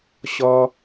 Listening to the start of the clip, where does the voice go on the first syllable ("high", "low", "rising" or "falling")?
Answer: high